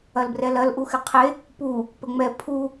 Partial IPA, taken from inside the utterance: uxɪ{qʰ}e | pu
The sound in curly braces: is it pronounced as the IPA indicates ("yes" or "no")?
yes